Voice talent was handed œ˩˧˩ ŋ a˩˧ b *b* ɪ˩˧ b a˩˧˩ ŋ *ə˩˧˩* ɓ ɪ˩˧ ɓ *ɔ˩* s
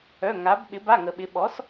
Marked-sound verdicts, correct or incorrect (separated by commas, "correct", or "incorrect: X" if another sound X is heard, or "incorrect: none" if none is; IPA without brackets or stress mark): incorrect: ɓ, incorrect: ə˩, incorrect: ɔ˩˥